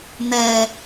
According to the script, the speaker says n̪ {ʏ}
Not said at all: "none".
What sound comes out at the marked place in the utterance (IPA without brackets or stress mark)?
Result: ɛ